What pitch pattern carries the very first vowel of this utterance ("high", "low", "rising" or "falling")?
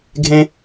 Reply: high